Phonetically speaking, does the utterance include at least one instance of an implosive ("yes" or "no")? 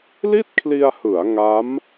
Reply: no